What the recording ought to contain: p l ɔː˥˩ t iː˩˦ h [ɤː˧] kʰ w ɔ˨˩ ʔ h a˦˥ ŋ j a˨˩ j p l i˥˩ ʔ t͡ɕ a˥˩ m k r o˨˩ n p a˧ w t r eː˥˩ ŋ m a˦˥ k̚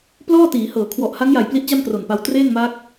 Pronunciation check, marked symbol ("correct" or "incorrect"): incorrect